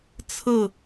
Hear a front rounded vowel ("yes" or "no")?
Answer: no